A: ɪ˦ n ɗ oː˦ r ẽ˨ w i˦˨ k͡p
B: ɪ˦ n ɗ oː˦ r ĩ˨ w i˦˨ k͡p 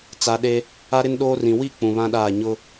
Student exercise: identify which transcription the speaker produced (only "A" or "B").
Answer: B